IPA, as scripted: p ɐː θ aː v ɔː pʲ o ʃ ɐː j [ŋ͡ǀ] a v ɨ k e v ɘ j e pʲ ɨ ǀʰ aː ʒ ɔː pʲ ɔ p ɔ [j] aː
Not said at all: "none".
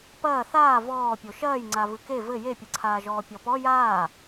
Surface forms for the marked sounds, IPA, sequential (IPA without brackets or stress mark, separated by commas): ŋ͡ǀ, j